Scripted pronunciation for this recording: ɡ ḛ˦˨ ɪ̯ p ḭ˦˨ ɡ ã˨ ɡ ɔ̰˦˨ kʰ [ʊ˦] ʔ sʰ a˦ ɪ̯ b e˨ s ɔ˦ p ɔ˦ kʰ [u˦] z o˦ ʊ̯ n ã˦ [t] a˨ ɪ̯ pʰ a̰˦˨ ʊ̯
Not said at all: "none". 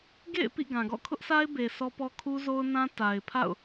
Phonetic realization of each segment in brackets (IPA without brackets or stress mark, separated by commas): ʊ˦, u˦, t